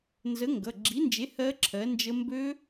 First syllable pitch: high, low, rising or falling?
rising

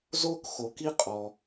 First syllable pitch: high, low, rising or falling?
high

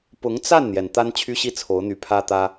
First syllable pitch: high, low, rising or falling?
rising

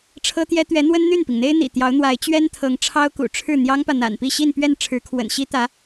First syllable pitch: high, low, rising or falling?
high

